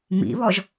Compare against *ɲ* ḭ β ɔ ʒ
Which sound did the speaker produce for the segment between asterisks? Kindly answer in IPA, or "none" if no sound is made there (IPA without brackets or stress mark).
m